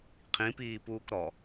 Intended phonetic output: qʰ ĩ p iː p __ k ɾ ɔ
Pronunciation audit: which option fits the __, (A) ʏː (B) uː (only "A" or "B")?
B